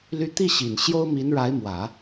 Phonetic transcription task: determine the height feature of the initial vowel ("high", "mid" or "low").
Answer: high